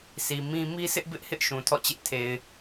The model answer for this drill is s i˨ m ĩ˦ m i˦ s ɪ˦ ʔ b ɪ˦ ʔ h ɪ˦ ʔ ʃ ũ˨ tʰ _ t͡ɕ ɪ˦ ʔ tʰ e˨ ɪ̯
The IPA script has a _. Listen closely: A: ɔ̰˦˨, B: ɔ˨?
A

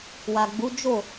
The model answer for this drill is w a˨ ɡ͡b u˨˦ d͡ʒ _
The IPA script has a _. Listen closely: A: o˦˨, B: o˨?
A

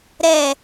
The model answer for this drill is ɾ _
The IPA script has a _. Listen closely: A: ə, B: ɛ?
B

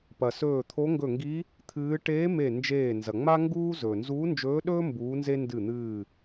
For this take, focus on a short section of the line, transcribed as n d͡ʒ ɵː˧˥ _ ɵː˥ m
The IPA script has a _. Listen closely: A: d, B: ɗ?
B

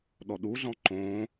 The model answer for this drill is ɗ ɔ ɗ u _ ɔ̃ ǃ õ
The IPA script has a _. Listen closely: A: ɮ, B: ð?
A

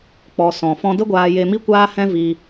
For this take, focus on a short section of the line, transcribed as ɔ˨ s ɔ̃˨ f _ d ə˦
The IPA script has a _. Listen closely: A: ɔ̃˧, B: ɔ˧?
A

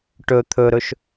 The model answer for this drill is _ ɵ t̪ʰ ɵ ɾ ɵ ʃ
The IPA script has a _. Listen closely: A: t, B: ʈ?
B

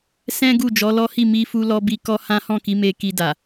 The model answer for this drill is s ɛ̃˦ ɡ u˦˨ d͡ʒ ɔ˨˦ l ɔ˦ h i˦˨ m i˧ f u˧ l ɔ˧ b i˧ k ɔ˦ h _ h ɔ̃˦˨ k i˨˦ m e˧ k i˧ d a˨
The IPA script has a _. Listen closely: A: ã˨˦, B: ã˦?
B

